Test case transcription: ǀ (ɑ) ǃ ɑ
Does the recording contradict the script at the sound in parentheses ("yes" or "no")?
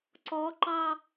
yes